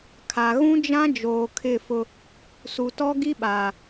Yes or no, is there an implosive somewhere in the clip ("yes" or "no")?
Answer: yes